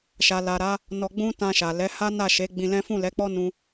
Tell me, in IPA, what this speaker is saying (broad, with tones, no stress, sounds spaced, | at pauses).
ʃ a˨ l a˨ ɾ a˨˦ | n ɔ˧ ɡ͡b ũ˦ t ã˧ ʃ a˨ l ɛ˨˦ h a˦ n a˦˨ ʃ e˨˦ ɡ͡b ĩ˧ l ɛ̃˦ f ũ˦˨ l ɛ˨˦ k͡p ɔ˦ n ũ˦